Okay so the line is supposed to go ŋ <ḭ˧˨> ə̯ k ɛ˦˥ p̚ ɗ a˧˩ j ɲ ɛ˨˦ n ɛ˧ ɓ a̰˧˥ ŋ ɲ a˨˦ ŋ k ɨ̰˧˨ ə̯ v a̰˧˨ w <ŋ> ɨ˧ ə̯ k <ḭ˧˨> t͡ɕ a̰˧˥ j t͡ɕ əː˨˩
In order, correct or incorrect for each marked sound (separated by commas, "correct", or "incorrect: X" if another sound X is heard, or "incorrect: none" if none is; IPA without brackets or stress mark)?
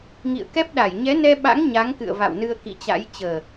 correct, incorrect: n, correct